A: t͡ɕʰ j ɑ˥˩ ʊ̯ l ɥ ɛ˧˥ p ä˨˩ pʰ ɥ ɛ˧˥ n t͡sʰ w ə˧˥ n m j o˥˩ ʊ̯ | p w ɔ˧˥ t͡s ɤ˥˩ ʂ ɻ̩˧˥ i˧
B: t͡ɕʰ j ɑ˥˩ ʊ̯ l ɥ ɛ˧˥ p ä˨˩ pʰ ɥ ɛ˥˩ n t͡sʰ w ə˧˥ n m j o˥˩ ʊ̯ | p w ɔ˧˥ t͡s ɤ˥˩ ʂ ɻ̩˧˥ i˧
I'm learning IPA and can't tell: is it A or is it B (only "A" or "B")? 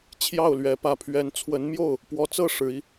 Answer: A